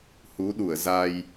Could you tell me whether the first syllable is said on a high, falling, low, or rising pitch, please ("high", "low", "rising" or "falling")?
rising